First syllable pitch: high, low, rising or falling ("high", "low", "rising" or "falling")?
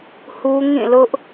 high